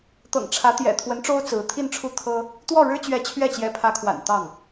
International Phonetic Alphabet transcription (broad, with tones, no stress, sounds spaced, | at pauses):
t̪ ɤ̰˨˩ ŋ ʈ͡ʂʰ ä˧˥ t̪ j ɛ̰˨˩ t̪ʰ w ə˧˥ n ʈ͡ʂ o˥ ʊ̯ t͡s ɹ̩˧˥ t̪ʰ i˥˧ n ʈ͡ʂʰ u˥˩ t̪ʰ ɤ˥ | t̪ w ɔ˥˩ ɻ ɻ̩˥ t͡ɕ ɥ ɛ˧˥ t͡ɕʰ ɥ ɛ˥˩ t͡ɕ j ɛ˧˥ pʰ ä˧˥ kʰ w a̰˨˩ n t̪ ɑ˥˩ ŋ